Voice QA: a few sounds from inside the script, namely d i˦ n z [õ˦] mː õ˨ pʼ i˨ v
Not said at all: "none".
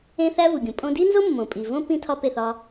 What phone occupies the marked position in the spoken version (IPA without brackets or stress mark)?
o˦